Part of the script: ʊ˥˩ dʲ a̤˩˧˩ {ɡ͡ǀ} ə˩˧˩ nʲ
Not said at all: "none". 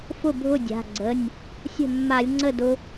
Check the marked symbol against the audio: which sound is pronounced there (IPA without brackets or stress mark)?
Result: ɡ͡ǀ